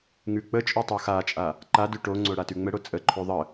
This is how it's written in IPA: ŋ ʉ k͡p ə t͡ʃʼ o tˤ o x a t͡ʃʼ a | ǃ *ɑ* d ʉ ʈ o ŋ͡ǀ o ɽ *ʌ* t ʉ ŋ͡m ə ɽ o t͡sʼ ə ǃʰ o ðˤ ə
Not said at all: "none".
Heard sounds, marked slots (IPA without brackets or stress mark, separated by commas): a, a